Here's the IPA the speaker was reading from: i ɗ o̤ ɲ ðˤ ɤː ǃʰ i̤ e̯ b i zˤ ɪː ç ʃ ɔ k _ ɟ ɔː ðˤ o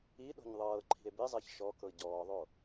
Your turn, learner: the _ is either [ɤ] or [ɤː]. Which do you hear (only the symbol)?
ɤ